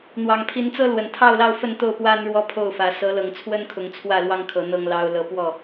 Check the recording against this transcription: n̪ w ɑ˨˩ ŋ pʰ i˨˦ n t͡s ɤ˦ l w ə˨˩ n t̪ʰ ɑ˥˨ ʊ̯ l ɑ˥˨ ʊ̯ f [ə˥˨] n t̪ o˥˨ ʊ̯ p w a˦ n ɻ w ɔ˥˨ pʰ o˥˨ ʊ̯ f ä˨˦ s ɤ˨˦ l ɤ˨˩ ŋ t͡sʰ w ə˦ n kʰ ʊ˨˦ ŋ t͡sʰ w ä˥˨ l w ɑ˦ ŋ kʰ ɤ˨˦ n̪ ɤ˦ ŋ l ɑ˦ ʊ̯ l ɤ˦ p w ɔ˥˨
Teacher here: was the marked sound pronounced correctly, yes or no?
yes